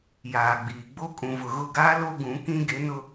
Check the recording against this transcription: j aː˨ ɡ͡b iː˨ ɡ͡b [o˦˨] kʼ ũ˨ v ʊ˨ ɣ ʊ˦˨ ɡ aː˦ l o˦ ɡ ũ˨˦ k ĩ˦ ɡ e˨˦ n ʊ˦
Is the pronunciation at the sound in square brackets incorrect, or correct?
incorrect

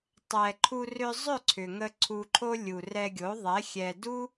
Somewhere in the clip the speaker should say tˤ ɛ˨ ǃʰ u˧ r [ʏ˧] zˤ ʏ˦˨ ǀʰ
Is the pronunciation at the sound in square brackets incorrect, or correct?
correct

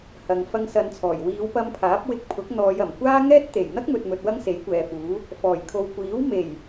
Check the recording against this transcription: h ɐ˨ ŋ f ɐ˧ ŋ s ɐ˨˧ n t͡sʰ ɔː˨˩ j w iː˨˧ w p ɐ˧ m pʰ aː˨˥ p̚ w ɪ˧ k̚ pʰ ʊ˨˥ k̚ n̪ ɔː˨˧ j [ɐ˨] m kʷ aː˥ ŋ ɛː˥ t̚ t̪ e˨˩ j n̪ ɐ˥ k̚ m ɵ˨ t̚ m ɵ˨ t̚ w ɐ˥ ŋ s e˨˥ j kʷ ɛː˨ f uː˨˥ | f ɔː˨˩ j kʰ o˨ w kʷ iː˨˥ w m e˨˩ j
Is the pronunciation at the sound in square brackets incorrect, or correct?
incorrect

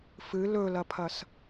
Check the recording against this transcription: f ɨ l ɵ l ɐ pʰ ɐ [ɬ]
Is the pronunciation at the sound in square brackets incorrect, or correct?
incorrect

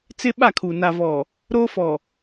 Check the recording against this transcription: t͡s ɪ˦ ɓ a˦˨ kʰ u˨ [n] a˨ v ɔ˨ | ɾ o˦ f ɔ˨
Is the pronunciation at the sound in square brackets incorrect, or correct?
correct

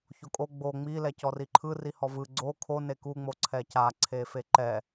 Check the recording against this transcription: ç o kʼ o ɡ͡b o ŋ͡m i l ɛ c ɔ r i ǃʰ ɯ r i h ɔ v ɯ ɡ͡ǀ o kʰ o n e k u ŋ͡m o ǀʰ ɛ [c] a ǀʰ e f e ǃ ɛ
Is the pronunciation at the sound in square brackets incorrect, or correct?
correct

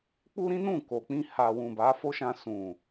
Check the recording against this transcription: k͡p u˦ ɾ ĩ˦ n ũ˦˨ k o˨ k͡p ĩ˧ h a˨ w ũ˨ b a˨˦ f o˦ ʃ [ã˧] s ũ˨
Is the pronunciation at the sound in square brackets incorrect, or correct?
correct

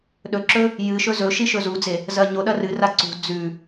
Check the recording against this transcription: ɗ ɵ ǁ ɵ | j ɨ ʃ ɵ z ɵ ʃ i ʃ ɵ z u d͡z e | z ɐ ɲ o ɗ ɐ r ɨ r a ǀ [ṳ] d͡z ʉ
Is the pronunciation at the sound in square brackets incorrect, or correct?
correct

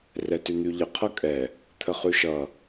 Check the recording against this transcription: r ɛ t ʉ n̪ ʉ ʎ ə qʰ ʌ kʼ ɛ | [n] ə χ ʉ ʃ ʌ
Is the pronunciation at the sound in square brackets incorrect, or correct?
incorrect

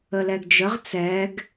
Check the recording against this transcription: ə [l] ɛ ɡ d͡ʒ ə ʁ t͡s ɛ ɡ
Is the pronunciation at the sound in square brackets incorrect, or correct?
correct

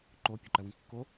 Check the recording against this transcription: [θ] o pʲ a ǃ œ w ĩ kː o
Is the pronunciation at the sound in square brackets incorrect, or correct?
incorrect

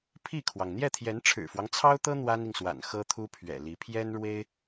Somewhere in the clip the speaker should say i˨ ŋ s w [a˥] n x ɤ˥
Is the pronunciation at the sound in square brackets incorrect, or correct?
incorrect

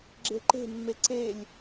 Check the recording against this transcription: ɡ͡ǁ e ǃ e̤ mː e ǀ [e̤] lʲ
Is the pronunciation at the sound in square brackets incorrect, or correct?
incorrect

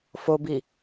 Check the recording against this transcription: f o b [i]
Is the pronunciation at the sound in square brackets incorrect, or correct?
correct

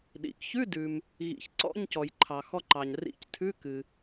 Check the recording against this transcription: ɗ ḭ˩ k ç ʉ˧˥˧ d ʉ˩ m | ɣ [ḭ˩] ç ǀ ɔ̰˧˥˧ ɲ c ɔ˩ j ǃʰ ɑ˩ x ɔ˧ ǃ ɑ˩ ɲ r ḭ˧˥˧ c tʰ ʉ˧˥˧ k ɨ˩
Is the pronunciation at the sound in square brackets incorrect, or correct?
correct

